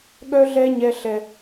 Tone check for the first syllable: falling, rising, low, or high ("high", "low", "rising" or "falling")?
high